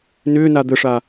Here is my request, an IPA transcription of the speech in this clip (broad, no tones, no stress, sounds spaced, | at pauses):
n ʏː n a d̪ ə ʂ a